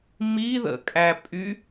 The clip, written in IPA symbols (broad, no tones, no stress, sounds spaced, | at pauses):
m i ð ə̰ kʼ æ pʼ y